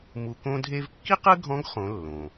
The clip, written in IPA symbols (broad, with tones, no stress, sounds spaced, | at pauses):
m u˩ k õ˧ dʱ e˧ v kː i˥ q ɯ˥ ɡʱ ɔ̃˧˥ ɡ χ õ˩˧ lː õ˩